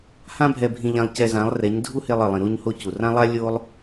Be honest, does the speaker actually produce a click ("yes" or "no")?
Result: no